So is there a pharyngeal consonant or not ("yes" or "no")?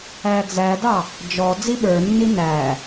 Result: no